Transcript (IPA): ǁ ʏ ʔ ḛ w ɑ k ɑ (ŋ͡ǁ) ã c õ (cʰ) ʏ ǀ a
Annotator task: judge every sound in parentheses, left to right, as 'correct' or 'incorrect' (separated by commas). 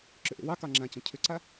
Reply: correct, correct